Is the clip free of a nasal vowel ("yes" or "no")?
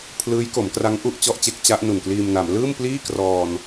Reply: yes